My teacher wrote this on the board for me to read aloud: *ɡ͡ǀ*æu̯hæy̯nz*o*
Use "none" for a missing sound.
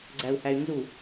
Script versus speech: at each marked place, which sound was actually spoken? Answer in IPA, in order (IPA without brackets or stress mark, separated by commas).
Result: ɡ͡ǀ, u